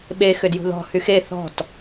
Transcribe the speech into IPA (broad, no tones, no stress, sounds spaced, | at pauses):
ɓ e x ʏ d j ṳ ð ɔ̤ h y x e θ ɔ̤ t